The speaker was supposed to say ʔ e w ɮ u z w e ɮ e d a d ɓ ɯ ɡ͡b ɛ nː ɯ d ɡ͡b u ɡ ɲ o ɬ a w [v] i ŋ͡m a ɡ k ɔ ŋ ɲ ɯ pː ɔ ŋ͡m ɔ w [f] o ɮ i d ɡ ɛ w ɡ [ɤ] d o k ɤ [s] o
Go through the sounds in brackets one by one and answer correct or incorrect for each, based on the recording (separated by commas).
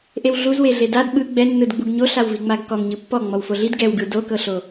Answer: correct, correct, incorrect, incorrect